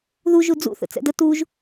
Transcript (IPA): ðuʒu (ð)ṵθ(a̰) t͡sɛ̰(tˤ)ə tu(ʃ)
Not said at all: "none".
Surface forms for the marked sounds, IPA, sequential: d͡z, ə̰, d, ʒ

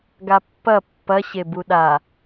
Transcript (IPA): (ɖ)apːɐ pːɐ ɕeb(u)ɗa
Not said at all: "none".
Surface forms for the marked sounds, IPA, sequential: ɡ, u

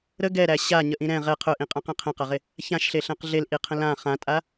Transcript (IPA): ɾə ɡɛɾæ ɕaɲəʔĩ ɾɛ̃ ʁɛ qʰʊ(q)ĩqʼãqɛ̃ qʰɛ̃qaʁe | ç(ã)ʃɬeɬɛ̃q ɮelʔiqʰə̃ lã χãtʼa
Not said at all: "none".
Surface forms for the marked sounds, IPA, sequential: ʔ, ã

